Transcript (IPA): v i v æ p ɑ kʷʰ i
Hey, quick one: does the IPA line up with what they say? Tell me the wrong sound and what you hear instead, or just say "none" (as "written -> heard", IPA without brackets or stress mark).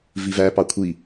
none